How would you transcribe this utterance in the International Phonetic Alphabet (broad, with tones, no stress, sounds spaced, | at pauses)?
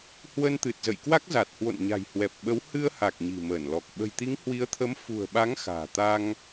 h w ə˧ n t̪ ɨ˨˩ t̚ z ə̰˧˨ j k w a˦˥ k̚ z a˨˩ t̚ h w o̰˧˨ n ɲ a̤˨˩ j h w ɛ˨˩ p̚ ɓ ə˨˦ w h ɨ˧ ə̯ h a˨˩ k̚ ɲ i̤˨˩ m əː˧˩ n l ɔ˨˩ k̚ ɓ ə̤˨˩ j t̪ i˨˦ ŋ h w i˨˦ ə̯ t̪ʰ ə˨˦ m f ṳ˨˩ ə̯ ɓ a˨˦ ŋ x a̤ː˨˩ t̪ a˧ ŋ